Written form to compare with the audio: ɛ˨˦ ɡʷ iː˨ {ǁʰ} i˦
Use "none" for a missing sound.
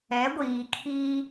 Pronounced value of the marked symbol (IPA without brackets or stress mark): kʰ